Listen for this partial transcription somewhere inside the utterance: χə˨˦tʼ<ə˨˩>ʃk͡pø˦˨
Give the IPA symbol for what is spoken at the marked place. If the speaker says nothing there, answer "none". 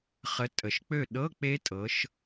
ə˨˩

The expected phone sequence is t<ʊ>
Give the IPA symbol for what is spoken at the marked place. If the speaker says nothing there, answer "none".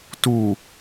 u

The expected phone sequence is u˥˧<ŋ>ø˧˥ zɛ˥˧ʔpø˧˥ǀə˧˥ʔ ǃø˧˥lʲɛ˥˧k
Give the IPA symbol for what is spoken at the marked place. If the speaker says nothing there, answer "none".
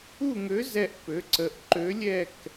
ŋ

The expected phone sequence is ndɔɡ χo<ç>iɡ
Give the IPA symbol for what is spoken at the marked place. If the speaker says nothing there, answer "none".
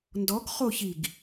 ç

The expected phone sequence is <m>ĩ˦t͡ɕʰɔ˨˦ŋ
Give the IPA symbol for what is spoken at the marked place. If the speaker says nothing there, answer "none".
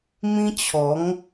m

